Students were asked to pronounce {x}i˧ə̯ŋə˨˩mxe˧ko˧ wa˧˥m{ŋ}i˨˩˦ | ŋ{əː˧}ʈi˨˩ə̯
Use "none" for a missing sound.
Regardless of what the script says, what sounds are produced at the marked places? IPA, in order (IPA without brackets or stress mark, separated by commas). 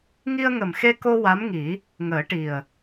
ŋ, ŋ, əː˨˩˦